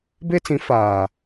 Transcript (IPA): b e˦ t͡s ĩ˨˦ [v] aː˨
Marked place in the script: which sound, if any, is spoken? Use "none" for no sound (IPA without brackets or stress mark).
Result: f